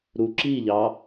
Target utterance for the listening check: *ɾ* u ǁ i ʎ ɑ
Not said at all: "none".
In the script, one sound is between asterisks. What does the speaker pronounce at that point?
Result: ɾ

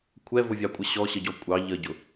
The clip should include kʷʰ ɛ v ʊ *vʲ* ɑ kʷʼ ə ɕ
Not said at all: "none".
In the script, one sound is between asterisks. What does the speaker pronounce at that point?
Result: vʲ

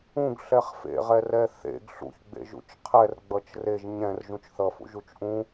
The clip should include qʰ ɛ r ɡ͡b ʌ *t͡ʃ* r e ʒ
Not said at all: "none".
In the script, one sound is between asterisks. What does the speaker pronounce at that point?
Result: t͡ʃ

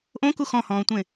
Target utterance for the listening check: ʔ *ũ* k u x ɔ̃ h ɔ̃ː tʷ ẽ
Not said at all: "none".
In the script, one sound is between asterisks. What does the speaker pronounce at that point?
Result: õ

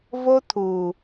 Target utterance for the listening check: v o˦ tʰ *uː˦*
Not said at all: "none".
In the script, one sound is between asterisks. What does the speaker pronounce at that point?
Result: uː˨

